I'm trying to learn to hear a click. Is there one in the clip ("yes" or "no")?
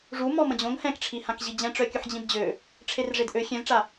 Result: no